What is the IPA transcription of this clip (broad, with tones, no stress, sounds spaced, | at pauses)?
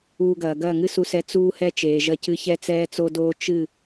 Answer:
uː˧ ɡ ɐː˨ ɡ ɐː˦˨ ŋ ɨ˦ s u˧ s ɛ˧ t͡s uː˧ h ɛ˧ t͡ʃ eː˨ ʒ ɐ˧ c ɨ˧ ç ɛ˧ t͡s ɛː˧ t͡s o˧ d oː˧ t͡ʃ ɨ˦˨